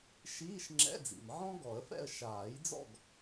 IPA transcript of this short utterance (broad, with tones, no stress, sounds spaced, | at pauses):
ʃ iː˧˥˧ ʃ ŋ͡ǁ ɛ̰˧˥˧ d͡z ḭ˩ m ʕ ɔ̃˥ ɡ ɔ˨˩˦ ə̯ f ɛ̰˥˨ ə̯ ʃ aː˨˩˦ j d͡z ɔ̰˥˨ ɡ